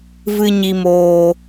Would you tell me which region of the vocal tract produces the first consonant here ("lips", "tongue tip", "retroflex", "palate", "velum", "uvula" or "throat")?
lips